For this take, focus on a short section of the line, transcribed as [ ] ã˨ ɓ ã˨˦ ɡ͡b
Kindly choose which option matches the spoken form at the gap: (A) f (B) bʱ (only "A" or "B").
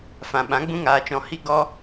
A